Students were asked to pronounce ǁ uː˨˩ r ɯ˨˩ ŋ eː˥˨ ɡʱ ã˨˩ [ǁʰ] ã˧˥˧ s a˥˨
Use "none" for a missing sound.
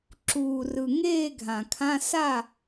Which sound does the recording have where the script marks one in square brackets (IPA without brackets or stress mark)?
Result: kʰ